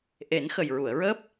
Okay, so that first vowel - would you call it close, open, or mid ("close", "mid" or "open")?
mid